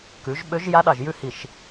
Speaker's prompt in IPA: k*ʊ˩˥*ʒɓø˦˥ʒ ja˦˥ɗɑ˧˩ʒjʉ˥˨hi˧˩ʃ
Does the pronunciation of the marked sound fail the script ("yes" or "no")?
yes